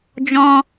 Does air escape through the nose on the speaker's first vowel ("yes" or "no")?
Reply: yes